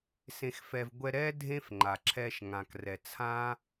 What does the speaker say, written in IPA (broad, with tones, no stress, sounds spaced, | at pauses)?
s ẽ˧ x f ɛ˧ v ɡʷ ɛ˧ ɾ ɛ˥ dʱ ẽ˥ f ŋ͡ǃ a˩ ǁʰ ɛ˧ ʃ ŋ ã˩ k r ɛ˩ t͡sʰ ã˥